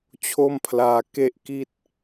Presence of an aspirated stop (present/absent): present